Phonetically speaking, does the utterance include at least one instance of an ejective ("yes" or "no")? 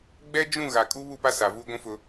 yes